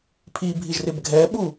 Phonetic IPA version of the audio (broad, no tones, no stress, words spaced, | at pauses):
pʰibʱiʒrɪb ɡʱɛɓu